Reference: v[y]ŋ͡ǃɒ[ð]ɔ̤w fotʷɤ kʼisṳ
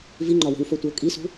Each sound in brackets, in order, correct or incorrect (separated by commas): incorrect, incorrect